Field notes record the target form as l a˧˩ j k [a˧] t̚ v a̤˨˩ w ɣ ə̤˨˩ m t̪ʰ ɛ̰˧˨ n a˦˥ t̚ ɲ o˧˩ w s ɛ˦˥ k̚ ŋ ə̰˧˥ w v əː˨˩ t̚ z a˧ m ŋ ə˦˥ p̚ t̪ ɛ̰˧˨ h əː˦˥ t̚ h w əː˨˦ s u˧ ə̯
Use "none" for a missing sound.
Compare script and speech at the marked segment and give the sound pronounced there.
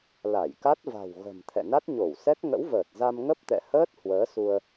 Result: a˦˥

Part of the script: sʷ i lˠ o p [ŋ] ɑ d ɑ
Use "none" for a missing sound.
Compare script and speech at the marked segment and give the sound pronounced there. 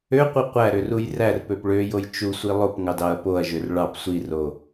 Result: ŋ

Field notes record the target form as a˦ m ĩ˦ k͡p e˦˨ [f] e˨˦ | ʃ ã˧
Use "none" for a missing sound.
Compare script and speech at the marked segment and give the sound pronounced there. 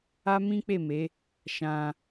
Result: m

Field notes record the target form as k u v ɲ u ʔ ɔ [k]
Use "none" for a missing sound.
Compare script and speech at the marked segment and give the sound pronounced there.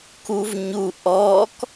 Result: k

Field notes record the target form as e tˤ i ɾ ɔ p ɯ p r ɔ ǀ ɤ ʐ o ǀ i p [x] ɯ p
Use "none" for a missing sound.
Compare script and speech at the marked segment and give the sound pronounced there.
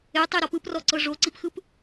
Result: x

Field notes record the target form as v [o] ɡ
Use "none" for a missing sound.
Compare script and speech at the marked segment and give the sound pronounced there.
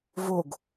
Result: o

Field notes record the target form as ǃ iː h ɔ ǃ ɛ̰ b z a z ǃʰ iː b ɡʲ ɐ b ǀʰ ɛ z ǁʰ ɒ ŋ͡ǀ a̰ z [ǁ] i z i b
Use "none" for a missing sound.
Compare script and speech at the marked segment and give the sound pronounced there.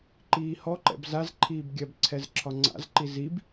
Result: ǃ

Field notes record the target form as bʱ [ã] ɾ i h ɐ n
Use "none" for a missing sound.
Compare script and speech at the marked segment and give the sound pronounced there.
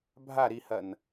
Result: a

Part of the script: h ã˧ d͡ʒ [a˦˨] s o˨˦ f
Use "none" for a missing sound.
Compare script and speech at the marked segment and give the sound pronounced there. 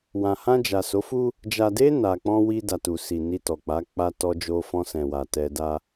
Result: a˨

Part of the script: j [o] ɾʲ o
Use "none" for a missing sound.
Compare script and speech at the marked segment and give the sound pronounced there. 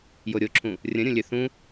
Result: o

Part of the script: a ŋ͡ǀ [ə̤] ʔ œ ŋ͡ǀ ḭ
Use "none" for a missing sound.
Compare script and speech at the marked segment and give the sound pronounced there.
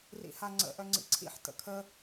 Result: ə̰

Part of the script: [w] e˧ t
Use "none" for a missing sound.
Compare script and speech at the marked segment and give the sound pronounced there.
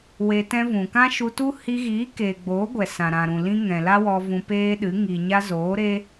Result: w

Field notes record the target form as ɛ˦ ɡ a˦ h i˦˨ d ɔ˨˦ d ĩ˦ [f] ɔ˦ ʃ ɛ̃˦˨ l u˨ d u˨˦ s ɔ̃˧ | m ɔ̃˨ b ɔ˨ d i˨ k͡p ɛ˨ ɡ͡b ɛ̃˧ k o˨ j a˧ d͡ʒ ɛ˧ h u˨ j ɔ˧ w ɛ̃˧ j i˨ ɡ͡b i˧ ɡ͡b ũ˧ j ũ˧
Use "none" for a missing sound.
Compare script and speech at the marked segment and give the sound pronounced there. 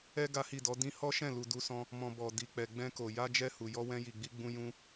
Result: h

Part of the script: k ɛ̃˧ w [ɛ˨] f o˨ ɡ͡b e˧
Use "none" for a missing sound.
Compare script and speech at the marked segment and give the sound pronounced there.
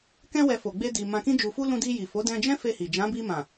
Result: ɛ˨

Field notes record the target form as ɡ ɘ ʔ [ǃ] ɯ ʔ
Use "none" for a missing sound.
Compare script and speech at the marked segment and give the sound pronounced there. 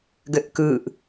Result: k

